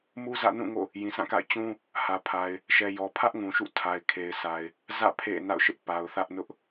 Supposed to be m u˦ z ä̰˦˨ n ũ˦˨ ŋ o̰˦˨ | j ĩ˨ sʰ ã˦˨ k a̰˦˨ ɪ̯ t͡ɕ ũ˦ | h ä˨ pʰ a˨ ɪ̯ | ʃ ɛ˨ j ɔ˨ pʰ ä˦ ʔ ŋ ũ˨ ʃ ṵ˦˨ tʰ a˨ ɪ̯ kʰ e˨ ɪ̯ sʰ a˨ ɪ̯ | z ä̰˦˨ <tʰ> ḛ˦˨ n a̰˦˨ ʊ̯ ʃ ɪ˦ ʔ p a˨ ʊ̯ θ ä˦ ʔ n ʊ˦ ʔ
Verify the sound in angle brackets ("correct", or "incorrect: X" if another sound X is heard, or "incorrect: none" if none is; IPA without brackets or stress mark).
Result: incorrect: pʰ